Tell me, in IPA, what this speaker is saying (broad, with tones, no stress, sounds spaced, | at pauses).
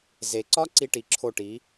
z e˩ ǀ ɒ˥ ǀ i˥ ʈ i˩˥ ǁʰ o˥˩ ʈ i˩˥